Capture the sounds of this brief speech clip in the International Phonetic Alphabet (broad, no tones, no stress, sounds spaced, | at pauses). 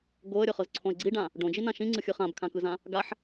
ɡ o ə̯ ɾʲ ɤ χ ɤ z ǀʰ õ ɪ̯ ɡ͡ǀ i ɖ ã | ɖ õ d͡ʒ i n ã ʃ ĩ ŋ͡ǀ ɯ xʲ ɯ χ ã b kʰ ã k ɯ z ã | ɡ a ħ